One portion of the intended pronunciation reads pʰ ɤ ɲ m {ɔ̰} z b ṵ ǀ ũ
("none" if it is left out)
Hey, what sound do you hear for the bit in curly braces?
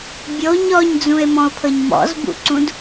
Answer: ɔ̰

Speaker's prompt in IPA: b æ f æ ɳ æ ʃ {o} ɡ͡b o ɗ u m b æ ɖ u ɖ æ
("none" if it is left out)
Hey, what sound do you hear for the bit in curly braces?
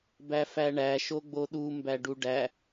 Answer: o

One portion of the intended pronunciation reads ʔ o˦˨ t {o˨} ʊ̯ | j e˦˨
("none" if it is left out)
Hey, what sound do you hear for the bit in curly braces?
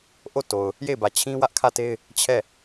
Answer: o˨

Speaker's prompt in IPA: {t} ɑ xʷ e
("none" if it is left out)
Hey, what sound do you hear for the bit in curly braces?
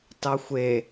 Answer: t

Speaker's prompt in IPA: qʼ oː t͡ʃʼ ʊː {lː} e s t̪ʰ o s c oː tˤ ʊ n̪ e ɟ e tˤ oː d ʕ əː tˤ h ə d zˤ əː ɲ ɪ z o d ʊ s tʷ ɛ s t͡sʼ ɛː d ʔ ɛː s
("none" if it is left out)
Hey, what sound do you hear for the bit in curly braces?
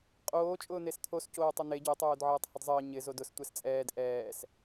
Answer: n̪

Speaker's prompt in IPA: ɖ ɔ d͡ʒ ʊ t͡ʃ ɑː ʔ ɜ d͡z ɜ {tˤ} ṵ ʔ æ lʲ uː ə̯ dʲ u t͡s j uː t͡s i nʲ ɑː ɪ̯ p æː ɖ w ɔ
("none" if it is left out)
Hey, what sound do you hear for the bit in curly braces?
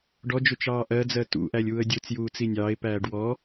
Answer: t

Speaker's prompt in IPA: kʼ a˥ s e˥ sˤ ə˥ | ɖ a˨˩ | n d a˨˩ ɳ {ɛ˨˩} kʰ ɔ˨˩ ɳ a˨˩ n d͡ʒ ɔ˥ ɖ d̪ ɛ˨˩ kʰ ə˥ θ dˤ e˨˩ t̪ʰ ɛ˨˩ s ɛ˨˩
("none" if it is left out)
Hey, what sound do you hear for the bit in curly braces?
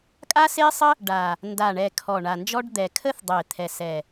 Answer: ɛ˨˩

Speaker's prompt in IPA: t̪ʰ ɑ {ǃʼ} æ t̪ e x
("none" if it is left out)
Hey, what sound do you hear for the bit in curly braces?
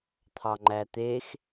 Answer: ŋ͡ǃ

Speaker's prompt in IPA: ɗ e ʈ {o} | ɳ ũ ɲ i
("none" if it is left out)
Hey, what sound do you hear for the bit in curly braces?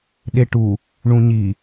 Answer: u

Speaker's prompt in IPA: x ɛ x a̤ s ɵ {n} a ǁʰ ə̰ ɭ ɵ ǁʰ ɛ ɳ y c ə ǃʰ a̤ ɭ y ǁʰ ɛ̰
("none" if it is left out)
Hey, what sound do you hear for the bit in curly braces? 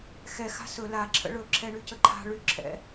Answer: l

